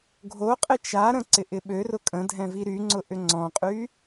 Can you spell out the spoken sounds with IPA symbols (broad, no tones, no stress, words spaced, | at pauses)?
ɡʱoqʼɪ t͡ʃaɾə̃ ǀɪʔɪɓørʊ kʼə̃dʱɛ̃ viɾyŋ͡ǀʊ ʔʏŋ͡ǀɔ̃qʼy